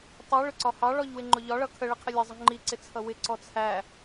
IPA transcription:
tˤ i ɭ ʊ ǀ ɒ h ɑ ɭ ɔ ʎ w ɪ ŋ͡ǃ ʊ ʎ ɒ ɭ ʌ kʰ ə ɭ ɪ qʰ ɪ lʲ ʌ zˤ ə ŋ͡ǃ i ǀ ɪ t͡sʰ ʌ w ɪ ǀ ɔ t͡sʰ æ

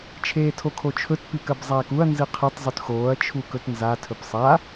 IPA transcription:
t͡ʃʰ eː tʰ o kʰ o t͡ʃʰ ɵ t p i k ɐ b zˤ aː k u ɐ̯ n z ɨ qʰ ɨ tˤ zˤ ʉ t x oː ɐ̯ t͡ʃʰ u k ɵ t n z a tʰ ɵ p sˤ a

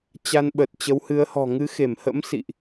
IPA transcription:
t͡ɕ a˧ n ɓ ə˨˩ t̚ t͡ɕ ə˨˦ w h ɨ˨˦ ə̯ h ɔ̤˨˩ ŋ ɨ˨˦ x e˧˩ m h ə̰˧˥ m s ḭ˧˨ ʔ

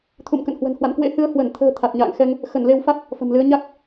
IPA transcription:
t̪ʰ ṵ˧˨ m k ə̰˧˨ n h w ə̤˨˩ n h w a̰˧˨ n k w ḛ˧˥ h ɨ˨˦ ə̯ h w ə˧˩ n t̪ʰ ə̤ː˨˩ t̪ʰ a˨˩ t̚ ɲ a̰ː˧˨ ŋ x ɛ˧ ŋ | x ə˧˩ n l e˧ w f a˦˥ t̚ | f ə̤˨˩ m l ɨ˨˦ ə̯ ɲ a˦˥ k̚

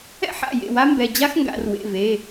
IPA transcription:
ɛ̰˥ ħ a̰˩˧˩ j ḛ˩˧˩ w a˥ m b ɛ˩˧˩ d͡ʑ a˥ x ŋ ɡ a̰˩˧ r w ḛ˩˧˩ v e˩˧˩

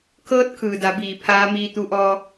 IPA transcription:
kʰ ɤː˧˥ t̚ kʰ ɯː˩ d a˩˧ b iː˩ pʰ aː˧˥ m iː˧ t̪ u˧ ʔ ɔː˧

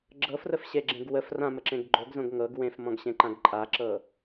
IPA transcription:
ɡ͡ǁ ɤ f r ə f ɕ e ɡ͡ǁ ẽ ɡ w ə f r ã m ə ǁ ẽ ɡ ɡ͡ǃ o ɡ z õ ɡ ŋ ɤ ɡ w ẽ f m ɔ̃ ɡ ɕ ẽ ǃ ã ɡ ǃʼ a ǁ ɤ

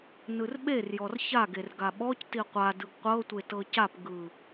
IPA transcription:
n ɯ r ɓ e r j ɔ r ç a ɡ e r ɡ a ɓ ɔ c t i qʷ a d ɯ ɡ qʷ ɤ tʷ e t ɤ c a p ɡ ɯ

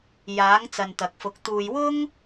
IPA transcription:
j aː˨˥ ŋ t͡s ɐ˨ n t̪ ɐ˨ k̚ f ʊ˨˥ k̚ t̪ uː˧ j w ʊ˥ ŋ

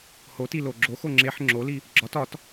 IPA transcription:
h o t i l o ɡ͡ǁ o x o ŋ͡ǁ e ħ ŋ͡ǁ o l i | ɡ͡ǁ ɒ t ɒ t

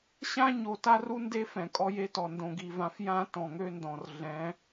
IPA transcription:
ɕ ã˦ ɲ o˨ t a˦ r u˦ n d e˦ f ɛ̃˨ kʼ ɔ˦ j e˦ t ɔ˨ n d õ˨ ɡ i˨ v ã˨˦ f j ã˦ t ɔ̃˨ ŋ ø˦ n d ɔ̃˨ r ɮ ɛ̃˨˦

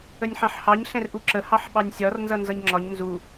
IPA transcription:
ə nʲ ħ ɑ̃ ħ h ɑ ɲ ɬ ɛ̃ r ʔ u ǁ ə h ɑ ħ ɓ ɑ nʲ sʲ ɒ r n z ʌ n z ʌ ɲ ŋ͡ǁ ɒ ɲ n z u

